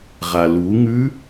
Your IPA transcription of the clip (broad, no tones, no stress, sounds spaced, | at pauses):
ʁ a l u ŋ ʉ